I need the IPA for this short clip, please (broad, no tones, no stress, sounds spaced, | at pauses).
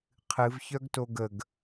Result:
qʰ ɨ v ç œ ɡ t o ɡ ə ɡ